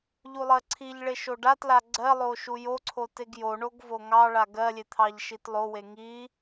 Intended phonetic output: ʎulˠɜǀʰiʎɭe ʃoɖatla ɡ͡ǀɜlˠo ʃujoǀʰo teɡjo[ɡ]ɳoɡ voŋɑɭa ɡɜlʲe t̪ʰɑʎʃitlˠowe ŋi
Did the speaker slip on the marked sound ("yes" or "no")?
yes